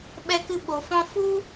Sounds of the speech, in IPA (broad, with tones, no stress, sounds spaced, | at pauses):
ɓ ɛ˧ k ɨ˧ ɓ o˨ f ɔ̃˧ f u˦